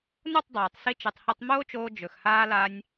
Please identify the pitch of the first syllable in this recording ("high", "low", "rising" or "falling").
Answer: falling